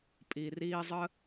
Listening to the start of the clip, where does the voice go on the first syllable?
low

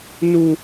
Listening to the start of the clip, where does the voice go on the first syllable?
high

